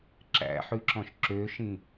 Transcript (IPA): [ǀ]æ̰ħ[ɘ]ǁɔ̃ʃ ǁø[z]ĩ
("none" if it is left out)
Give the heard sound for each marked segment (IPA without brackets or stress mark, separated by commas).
ǁ, ʉ, ʃ